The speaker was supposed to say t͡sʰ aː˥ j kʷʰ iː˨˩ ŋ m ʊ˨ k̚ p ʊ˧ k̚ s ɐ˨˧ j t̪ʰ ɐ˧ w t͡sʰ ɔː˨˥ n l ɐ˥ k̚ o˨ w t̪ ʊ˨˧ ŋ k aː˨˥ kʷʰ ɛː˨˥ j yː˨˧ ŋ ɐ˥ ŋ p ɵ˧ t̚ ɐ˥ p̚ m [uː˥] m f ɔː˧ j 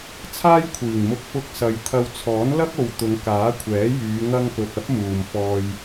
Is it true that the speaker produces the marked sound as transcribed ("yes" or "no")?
no